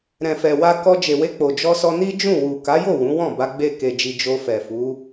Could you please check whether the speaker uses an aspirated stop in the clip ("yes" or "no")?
no